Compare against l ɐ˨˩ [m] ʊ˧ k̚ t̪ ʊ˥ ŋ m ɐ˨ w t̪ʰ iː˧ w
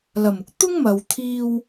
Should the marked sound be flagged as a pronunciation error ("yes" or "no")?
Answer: no